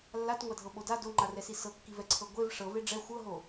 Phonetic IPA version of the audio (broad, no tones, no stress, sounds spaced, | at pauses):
lː a t ŋʷ a dʱ ɤ ɓ o d a d o ŋ͡ǃ a r ɛ s i s ɤ kː i v ɛ ǀʰ ɤ ɡʷ e v ʂ ɤ v e ɖ͡ʐ ɛ xʷ ɤ ɦ o